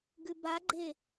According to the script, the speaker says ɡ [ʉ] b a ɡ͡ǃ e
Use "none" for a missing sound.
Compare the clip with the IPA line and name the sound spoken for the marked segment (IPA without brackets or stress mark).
ʉ